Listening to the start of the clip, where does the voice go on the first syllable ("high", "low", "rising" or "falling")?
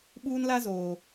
high